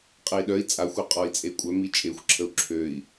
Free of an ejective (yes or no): no